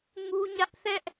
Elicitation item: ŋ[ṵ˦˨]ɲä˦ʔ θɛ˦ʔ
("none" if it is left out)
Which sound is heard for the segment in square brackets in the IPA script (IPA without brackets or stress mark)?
u˦